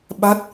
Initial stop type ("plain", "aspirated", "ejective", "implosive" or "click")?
implosive